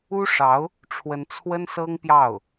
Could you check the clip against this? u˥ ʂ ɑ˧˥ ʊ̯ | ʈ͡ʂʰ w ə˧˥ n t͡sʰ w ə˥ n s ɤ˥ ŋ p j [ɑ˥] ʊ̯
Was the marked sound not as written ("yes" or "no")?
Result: yes